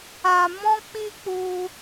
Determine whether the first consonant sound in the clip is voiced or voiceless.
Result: voiced